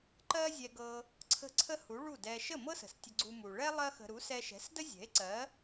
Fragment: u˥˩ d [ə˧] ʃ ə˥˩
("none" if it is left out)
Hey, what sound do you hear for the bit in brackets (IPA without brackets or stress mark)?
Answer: ɛ˧